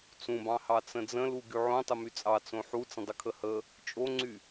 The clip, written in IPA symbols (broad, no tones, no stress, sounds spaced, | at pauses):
t͡s ũ b ɑ̃ h ɑ t͡s ə̃ d͡z ə̃ l u ɡ y ʕ õ tˤ ə m y t͡sʼ ɑ t͡s õ ħ u t͡s ə̃ dˤ ə kʰ ə h ə | t͡ʃʼ o ŋ͡ǀ y